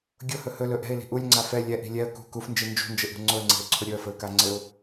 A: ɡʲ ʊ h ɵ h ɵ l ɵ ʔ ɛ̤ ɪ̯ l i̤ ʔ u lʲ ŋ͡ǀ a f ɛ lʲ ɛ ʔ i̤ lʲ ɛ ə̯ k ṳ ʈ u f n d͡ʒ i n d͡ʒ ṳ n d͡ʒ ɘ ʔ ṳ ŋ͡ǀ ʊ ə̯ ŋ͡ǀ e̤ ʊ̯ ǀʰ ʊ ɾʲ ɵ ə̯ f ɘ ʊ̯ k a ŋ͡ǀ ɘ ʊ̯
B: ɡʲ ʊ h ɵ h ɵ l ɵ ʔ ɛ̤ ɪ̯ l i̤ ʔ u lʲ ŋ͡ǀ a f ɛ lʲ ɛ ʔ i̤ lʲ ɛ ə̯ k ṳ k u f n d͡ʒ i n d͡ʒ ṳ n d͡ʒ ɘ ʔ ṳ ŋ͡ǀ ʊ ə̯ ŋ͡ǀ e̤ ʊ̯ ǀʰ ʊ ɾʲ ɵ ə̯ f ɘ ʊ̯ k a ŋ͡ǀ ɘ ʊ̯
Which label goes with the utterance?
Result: B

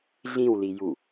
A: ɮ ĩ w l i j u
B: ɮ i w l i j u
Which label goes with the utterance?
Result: A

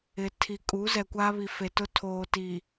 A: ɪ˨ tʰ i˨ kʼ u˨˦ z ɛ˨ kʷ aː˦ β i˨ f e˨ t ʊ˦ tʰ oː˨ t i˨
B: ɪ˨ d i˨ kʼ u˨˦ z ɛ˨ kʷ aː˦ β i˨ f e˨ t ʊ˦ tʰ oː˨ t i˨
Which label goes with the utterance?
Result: A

